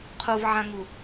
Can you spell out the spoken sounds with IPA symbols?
qʰ u v ʕ ã ŋ u

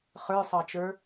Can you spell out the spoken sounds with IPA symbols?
χ ə˞ sˤ ɑ t͡ʃ ə˞

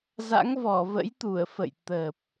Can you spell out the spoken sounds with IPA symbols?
z a̰˧˥ ŋ v ɔ˧˩ v ə̰˧˥ j t̪ u˧˩ ə̯ f ə̰˧˨ j t̪ əː˨˩ p̚

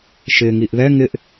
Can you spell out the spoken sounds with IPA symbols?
ʃ ɪ ŋ i ʔ ð ɛ ŋ ɪ ʔ

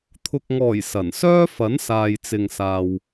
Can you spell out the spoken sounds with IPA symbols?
t̪ʰ ʊ˨ k̚ ŋ ɔː˨˩ j s ɐ˨˩ n s œː˥ f ɐ˨˥ n s aː˨ j t͡s ɪ˨ ŋ s aː˨ w

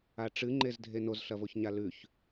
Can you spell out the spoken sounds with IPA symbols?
a ʈ͡ʂ ɨ ŋ͡ǃ e z dʱ e n o z ɬ ɐ v o ç ɲ a l ʉ ç

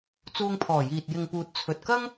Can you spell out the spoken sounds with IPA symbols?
t͡s uː˧ ŋ pʰ ɔː˨˩ j iː˨ t̚ j ɪ˨ ŋ p uː˨ t̚ t͡sʰ ɵ˨ t̚ k ɐ˥ ŋ

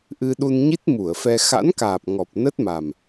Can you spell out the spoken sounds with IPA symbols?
ʔ ɨ˧ ɗ u˧ n ɲ i˦˥ t̚ m u˧˩ ə̯ f ɛ˧ x a̰˧˥ n k aː˨˩ p̚ ŋ ɔ˨˩ p̚ n ə˦˥ t̚ m a˨˩ m

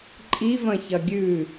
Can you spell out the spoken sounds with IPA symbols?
ǃʼ i v ɐ̃ ç ɐ ɡʲ ʉ

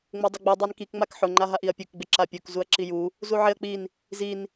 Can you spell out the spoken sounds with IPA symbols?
ŋ͡m ʊ dˤ ʊ ɡ͡b i dˤ a n k i k ŋ͡m a k ħ ʊ ŋ͡ǃ a ɦ a ʔ i ɐ̯ pʲ u k ɡ͡b ɪ ǁ a pʲ u k z u ɐ̯ ǁ i j u | z u ʕ ɪ ɐ̯ k͡p i n | z i n

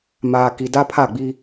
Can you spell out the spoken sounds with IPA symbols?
m aː˨ k i˨ d a˦ pʰ a˦˨ ɡ͡b i˦

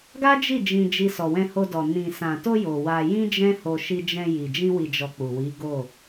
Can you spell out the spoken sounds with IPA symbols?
ɡ a˦ d͡ʒ i˦˨ d͡ʒ ĩ˧ d͡ʒ i˧ s ɔ˨ w ɛ̃˧ h o˧ d ɔ˨ n ĩ˨ s ã˨ t o˧ j o˨ w a˧ j ĩ˦ d͡ʒ ɛ̃˦ h o˧ ʃ i˧ d͡ʒ ɛ̃˧ j i˨ d͡ʒ ĩ˧ w i˨ d͡ʒ ɔ˨ k͡p u˨ w i˨˦ ɡ o˦˨

